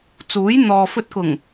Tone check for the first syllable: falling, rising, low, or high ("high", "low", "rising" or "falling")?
rising